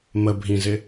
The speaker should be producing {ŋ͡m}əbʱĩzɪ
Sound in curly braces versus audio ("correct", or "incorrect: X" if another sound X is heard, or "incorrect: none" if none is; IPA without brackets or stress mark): incorrect: m